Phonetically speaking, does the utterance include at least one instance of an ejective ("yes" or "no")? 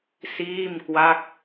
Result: no